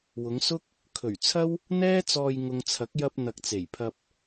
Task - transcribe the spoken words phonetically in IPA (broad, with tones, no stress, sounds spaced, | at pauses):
w ʊ˨˧ ŋ s ʊ˥ k̚ | kʰ ɵ˨˩ ɥ t͡sʰ ɐ˥ w | n̪ ɛː˥ t͡s ɔː˧ j ŋ ʊ˨ ŋ t͡sʰ ɐ˨˥ k̚ j ɐ˧ p̚ n̪ ɐ˨ k̚ t͡s e˨˩ j pʰ ɐ˧ p̚